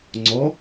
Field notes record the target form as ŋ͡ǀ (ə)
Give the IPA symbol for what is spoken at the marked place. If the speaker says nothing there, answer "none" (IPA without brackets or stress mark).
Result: ɔ